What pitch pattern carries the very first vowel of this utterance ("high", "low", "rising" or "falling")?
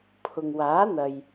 low